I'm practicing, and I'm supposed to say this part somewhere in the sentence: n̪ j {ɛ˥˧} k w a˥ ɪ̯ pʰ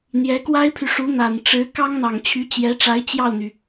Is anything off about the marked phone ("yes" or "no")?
yes